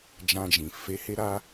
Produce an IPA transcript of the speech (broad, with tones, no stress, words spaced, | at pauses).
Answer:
d͡ʒã˧d͡ʒĩ˨ fe˨˦ he˧ɾa˧